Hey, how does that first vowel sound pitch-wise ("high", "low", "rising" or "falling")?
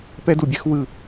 high